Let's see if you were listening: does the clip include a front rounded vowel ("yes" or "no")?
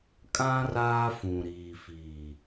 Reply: no